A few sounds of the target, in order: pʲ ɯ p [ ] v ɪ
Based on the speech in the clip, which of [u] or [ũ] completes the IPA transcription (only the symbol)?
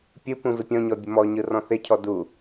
ũ